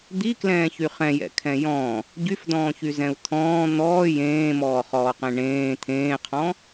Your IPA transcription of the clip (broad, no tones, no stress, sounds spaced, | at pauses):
d̪ i k l ɛ̃ː ç y χ ɛ̃ j ɛ̰ kʰ ɛ̃ j ɔ̃ | ɟ y f d ɔ̃ː ç y z ɛ̃ u̯ t̪ʰ ɔ̃ː n̪ ɔː j ẽː m ɔː χ ɔː q ẽ ɳ ẽː t̪ʰ ẽː qʰ ɔ̃